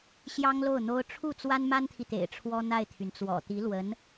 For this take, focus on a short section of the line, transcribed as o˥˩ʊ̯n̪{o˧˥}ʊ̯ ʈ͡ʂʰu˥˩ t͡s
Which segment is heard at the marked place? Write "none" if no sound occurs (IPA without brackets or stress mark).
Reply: o˥